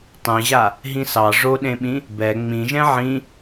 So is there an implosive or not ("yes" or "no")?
yes